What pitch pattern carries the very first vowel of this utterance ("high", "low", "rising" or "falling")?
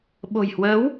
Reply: low